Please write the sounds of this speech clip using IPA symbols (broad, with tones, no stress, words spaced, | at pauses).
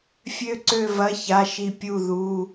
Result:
fʲø˥˨ǀø˥˨vɐ˧˥˧ ça˧˥˧ʃi˥˨ pʲu˥˨ðu˧˥˧